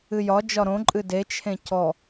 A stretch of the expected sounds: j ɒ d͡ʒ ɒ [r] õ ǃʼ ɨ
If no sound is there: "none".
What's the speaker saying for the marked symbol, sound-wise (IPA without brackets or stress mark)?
ɾ